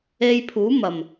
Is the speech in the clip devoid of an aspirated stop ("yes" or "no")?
no